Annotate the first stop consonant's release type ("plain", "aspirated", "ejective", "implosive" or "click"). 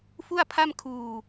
aspirated